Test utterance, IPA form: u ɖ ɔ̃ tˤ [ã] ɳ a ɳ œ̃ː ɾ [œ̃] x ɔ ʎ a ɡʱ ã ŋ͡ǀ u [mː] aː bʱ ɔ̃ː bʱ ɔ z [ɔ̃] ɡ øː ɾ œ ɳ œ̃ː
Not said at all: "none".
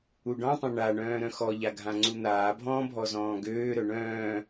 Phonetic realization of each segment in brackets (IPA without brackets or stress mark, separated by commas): ã, œ̃, n̪, ɔ̃ː